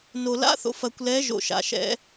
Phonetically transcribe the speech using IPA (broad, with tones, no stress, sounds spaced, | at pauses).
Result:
n o˨ l a̰˦ θ o̰˨ f ɐ˨ kʷ l ɛ˨˦ ʒ o̰˨ ʃ a̰˨ ʃ ɛ̰˨˦